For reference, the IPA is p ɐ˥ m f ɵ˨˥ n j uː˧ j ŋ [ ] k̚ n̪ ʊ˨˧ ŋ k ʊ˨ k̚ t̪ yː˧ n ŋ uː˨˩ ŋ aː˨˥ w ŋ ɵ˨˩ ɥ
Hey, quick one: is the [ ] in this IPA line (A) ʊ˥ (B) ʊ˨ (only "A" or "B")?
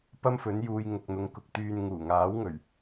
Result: B